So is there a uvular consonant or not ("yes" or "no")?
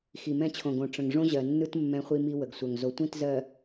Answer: yes